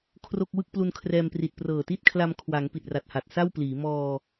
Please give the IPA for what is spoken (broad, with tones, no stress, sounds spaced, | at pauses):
kʰ r o˥˩ k̚ w ɯ˥˩ k̚ p l u˧ n kʰ r ɛː˧ m p r i˨˩ t̚ p r ɤː˨˩ t i˥˩ t̚ kʰ l a˧ m kʰ w a˩˦ ŋ p i˨˩ t̚ r a˨˩ t̚ h a˨˩ t̚ s a˥˩ w p l iː˩˦ m ɔː˧